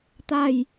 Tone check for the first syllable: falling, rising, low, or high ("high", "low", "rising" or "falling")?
falling